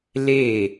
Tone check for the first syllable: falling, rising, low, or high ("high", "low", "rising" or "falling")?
falling